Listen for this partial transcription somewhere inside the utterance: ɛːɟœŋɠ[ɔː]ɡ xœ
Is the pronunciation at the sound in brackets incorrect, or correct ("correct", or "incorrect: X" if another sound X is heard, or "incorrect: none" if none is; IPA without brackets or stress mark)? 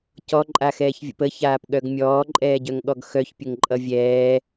incorrect: ɔ